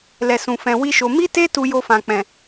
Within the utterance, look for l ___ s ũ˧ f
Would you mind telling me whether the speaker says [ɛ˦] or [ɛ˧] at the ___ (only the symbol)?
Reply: ɛ˧